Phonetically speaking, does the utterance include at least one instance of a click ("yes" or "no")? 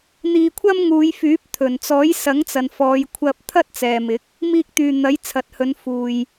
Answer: no